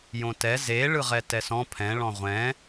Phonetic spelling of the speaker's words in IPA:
j õ t ɛ z e ɭ ɯ ʁ ɛ t ɛ s ɔ̃ pʰ ɛ̃ ɭ ɔ̃ ʁʷ ɛ̃

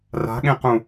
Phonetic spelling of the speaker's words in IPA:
r a̤ ɠ ẽ q ũ

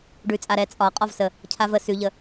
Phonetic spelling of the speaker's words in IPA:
ɖ ʉ t͡sʼ a ɾ ɛ t͡sʼ ɒ qʼ ɒ v s ə | cʰ a v ə s ʉ ʎ ə

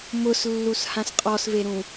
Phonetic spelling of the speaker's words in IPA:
m ʊ s lː u s h ã s qʼ ɔ s v e ɾ ũ

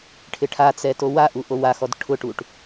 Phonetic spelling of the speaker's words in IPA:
ʈʰ ɪ ʈʰ a t͡s ɛ t o w a ʔ u ʔ o w a x ɔ d ʈʰ ʊ ʈ u ʈ

